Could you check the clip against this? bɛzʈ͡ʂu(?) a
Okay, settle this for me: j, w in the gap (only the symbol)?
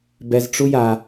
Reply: j